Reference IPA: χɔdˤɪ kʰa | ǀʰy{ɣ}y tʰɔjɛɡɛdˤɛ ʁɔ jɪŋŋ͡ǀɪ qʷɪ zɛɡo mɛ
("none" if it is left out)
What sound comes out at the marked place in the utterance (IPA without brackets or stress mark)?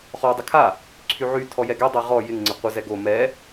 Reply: ʕ